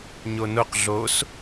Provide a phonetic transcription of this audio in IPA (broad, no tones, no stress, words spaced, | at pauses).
ɲonoq ɮos